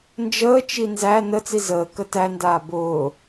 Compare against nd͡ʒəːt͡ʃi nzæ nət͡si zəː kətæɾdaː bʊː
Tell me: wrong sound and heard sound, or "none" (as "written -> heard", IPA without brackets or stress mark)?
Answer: ɾ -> n